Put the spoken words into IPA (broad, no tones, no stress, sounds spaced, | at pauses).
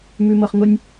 m ʉ m ɤ χ ŋ ʊ nʲ